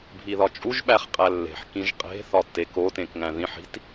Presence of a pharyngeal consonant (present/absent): present